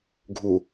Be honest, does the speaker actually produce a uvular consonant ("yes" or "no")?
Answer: no